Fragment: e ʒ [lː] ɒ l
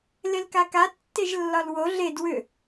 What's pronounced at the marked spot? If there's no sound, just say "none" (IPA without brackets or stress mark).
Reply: lː